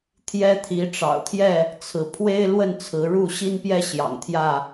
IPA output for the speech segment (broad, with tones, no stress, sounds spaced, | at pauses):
t̪ʰ j ɛ˦ t̪ʰ i˨˦ ʈ͡ʂ ɑ̰˨˩ ʊ̯ t̪ʰ j ɛ˥˨ | t͡sʰ ɹ̩˨˦ pʰ w e˦ ɪ̯ l w ə˥˨ n t͡sʰ ɹ̩˨˦ ɻ u˥˨ ɕ i˦ n p j ɛ˦ ɕ j ɑ̰˨˩ ŋ t̪ʰ j ä˥˨